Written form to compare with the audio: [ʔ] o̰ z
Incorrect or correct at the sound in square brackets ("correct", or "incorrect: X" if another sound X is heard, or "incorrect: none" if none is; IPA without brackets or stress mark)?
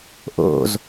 correct